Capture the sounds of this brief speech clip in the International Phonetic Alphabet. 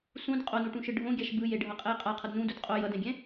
sũd qʼonuʈũʃɯ ɖʱõɡʲaʃ bɯjeɖʱʌqʼɛj qʼaqʰʌd nũdud qʼo jʌdɛ̃ɡʲɛ̃

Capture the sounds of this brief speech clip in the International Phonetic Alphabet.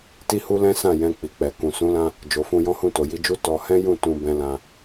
ti˦hu˦lɛ̃˦sã˦˨ jɛ̃˧ k͡pi˨k͡pɛ˨kũ˨ sũ˨˦lã˧ | d͡ʒo˨ fũ˧jɔ̃˦hũ˦˨ to˨ji˨˦d͡ʒu˦ tɔ˧ hɛ̃˦jũ˦˨ tũ˧bɛ̃˧ lã˧

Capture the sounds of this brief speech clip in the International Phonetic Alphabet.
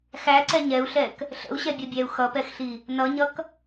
xæǀɛ ɲɛu̯ɬɛk | ɬə̰u̯ɕɛbʲɒbʲæu̯ xʌpɛxɬi | nʌɲʌk

